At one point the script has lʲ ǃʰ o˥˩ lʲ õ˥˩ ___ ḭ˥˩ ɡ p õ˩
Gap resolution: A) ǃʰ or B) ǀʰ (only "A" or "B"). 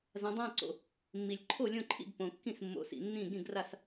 A